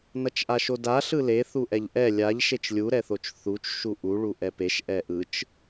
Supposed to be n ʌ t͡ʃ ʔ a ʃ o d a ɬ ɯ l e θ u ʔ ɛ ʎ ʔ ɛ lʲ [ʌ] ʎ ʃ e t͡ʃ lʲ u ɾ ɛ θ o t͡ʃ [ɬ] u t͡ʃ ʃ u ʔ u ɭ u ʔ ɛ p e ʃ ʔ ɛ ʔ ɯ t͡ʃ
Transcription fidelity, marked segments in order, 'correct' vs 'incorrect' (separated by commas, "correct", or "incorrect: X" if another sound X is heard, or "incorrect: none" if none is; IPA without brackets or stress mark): incorrect: a, incorrect: θ